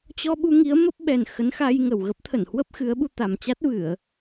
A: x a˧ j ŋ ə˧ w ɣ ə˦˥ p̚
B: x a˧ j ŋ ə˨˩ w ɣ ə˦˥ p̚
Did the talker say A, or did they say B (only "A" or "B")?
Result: B